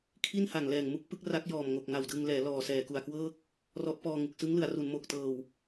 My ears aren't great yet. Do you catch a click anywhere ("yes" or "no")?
no